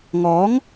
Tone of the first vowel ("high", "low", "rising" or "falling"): rising